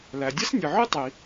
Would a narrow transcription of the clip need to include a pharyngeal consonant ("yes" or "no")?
yes